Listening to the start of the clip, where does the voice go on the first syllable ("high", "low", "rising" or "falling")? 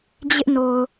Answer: high